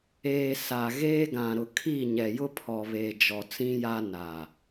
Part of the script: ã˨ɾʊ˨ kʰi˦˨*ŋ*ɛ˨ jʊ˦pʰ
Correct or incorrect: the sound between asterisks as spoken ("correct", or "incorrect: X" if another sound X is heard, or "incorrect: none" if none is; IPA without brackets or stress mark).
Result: incorrect: ɲ